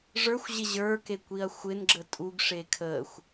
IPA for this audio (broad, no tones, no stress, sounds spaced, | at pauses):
ʐ ə˞ xʷ ʑ ɪ ʑ ə˞ k e kʷ i ɐ̯ xʷ ɪ n ɡ͡ǁ ə tʼ u ɡ ʂ e kʰ ə xʷ